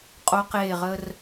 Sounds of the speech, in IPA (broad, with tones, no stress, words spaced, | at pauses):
qʼo˧qeː˧˩ ʁə˧r